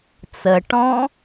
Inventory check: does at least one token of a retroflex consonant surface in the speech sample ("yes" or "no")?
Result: yes